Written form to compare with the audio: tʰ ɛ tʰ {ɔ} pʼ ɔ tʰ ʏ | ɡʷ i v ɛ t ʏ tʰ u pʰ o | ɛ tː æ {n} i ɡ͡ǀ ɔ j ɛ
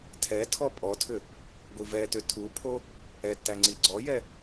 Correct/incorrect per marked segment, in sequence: correct, incorrect

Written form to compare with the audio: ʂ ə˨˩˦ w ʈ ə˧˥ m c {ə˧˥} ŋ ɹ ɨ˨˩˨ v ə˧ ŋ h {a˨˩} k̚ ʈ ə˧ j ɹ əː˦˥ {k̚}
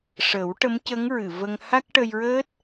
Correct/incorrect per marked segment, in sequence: correct, incorrect, incorrect

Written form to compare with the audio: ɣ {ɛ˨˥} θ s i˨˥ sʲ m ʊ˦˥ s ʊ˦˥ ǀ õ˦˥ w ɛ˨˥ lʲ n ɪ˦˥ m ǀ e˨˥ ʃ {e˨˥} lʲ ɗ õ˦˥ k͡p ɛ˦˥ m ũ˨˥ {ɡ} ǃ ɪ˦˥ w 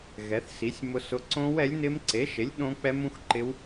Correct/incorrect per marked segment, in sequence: correct, correct, incorrect

